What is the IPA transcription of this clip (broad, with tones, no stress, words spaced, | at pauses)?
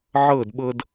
ʕɤ˦˨dɓɤ˧d